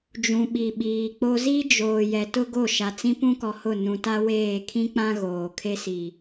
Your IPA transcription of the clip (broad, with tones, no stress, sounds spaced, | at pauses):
d͡ʒ ũ˨ ɓ i˨ ɓ iː˨ k͡p o˦ z i˦ d͡ʒ oː˨ j ɛ˨ t ʊ˦ ɡ o˦˨ ʃ a˨ t͡s ĩ˦ p ũ˦ k ɔ˨ h ʊ˦˨ n ũ˨ t a˦ w eː˦˨ kʰ ĩ˦ k͡p ã˦ ɣ oː˨ kʰ e˦ s i˨